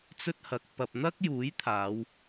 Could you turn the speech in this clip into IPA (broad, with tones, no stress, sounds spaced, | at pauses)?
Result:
t͡s ɵ˥ t̚ h ɐ˨˥ k̚ p ɐ˨ p̚ n̪ ɐ˥ k̚ j uː˨˥ j t̪ʰ aː˨˧ w